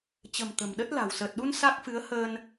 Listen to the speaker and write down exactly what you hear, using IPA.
t͡ɕ ə̤˨˩ m t̪ ə̤˨˩ m ɗ ə˦˥ t̚ l a̤˨˩ w s əː˨˩ t̚ ɗ u˧ n s a˦˥ k̚ f ɨ˨˦ ə̯ h əː˧ n

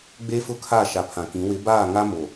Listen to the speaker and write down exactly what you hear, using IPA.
ɡ͡b e˦ f ʊ˦ kʰ a˦˨ ʃ a˨ pʰ ã˨ k ĩ˨˦ w ɪ˨˦ b aː˦˨ ŋ a˦ m o˨

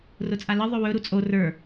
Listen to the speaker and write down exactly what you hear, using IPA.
r ʊ t͡sʼ a l ɘ ðˤ ɵ w ɵ ɾ u t͡sʼ o r ə˞

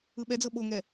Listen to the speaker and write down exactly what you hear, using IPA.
ɯ ɓ ɛ d͡z ɤ ɓ o ŋ ɛ

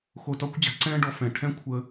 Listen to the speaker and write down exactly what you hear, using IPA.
x o˧ t ɒ˥ kʷ d͡ʑ a̤˩˥ ǀ ɛ̃ː˥ ɖ ɔ˧ f ɛ̃˩ ʈʰ ɛ̃˥ kʷʰ əː˧

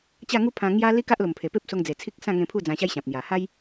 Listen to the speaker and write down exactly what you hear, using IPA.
t͡ɕ a˥˧ ŋ u˦ pʰ ã˧ ŋ j a˦ l i˦ k a˦ ʔ l o˨˩ m pʰ e˨˩ p e˦ p̚ s o˧ ŋ d͡z e˨˩ t͡sʰ i˦ k̚ s ã˥˧ ŋ ẽ˧ pʰ u˥˧ d͡z ã˧ ɕ a˦ j ɕ ã˨ p̚ n̪ j a˨˩ h a˦ j

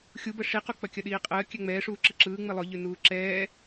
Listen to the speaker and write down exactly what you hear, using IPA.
xʲ u b ə ʂ i q u k͡p ɐ kʲ ɐ ɗ iː qʼ əː kʲ ɛ ŋ͡m ɛː ʂ uː ǁ ɯ ǁ ɯː ŋ͡m i lˠ ʊ ʎ ʉ n uː ǁ ɛː

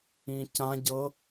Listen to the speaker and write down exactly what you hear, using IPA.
ĩ c ã ɟ ɤ

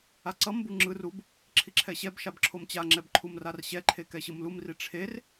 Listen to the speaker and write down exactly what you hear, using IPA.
a ǀ ʌ m b u ŋ͡ǁ ɯ r u b | ǁʰ i ǁʰ ɛ ɕ ɛ b ʃ a b ǁʰ o m t͡ɕ a ŋ͡ǁ ɛ b ǃʰ u m r a r ɕ ɛ ǃʰ e k ɛ ɕ ɯ m l u m r i ʈ͡ʂʰ e r

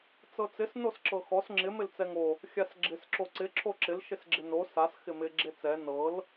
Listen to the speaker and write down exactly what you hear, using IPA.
t͡s ɤ t͡s ɪ s n o s ǁ ɤ x ɔ s ŋ͡ǁ ɪ m ɪ l t͡s ɛ ŋ o | xʲ a s ɡ͡ǁ ɪ s ǁ o ǀ ɪ ǁʰ o ǁ ɪ l ʃ ɪ s ɡ͡ǁ ɪ n o s a s x ɪ m ɪ ɡ͡ǁ e t͡s ɛ n ɤ l

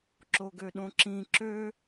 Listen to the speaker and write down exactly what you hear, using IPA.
ǁ o ɡ ø ɗ õ ǁ ĩ ǁ ø

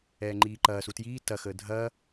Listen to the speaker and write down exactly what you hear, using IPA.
ɛː ŋ͡ǃ iː ǃ ɐː s u t j iː t ɐ x əː dʱ ɐː

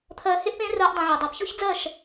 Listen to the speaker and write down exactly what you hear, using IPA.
t̪ʰ ɜː˧ h e˦ ʔ p ẽː˦ r ɜː˦ ʔ dˤ ẽ˧ ʕ u˨ dˤ ɑ˨ p ç ɔ˦ ç d͡z ɜ˦˨ ʃ

